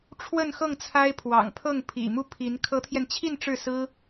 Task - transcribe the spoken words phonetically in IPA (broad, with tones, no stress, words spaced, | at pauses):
ʈ͡ʂʰwə˥˧nxɤ˥˩ŋt͡sʰa˥ɪ̯ pʰwɑ̰˨˩ŋpʰɤ˥˩ŋ pʰḭ˨˩mu˥˩pʰi˧˥n kʰɤ˧˥t̪ʰjɛ˧nt͡ɕʰi˥˧n ʈ͡ʂɻ̩˥˩sɹ̩˥